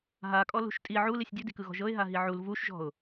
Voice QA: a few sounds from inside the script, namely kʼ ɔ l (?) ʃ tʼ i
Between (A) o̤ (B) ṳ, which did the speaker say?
B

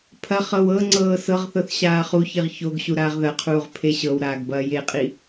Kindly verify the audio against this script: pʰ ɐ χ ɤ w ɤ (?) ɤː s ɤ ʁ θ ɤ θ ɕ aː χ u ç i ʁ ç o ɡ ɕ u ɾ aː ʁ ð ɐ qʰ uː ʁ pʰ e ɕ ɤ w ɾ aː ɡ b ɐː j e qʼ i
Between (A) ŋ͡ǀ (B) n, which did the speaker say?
A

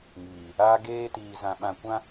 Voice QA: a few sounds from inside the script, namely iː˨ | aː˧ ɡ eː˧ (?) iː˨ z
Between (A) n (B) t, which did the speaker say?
B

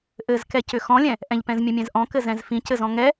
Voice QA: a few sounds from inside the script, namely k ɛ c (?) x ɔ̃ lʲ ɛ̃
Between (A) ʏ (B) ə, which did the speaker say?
A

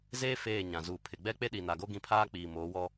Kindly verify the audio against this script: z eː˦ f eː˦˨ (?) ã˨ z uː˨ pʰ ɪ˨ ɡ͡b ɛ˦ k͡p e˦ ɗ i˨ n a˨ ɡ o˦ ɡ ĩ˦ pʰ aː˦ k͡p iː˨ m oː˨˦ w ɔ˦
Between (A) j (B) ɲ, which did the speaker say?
B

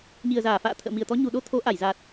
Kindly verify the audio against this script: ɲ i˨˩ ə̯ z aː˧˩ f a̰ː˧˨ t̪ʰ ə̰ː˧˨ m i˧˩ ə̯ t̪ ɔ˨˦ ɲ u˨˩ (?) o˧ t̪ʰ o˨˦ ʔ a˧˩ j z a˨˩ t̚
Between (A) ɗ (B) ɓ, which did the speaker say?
A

